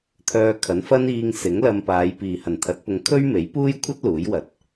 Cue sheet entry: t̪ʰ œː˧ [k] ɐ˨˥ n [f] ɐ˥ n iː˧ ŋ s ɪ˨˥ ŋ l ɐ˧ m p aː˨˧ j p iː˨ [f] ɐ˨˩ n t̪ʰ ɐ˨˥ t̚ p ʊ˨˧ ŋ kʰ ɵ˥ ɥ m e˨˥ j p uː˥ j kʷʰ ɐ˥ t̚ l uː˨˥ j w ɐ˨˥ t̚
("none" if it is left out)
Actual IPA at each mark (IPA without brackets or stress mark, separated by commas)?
kʰ, f, h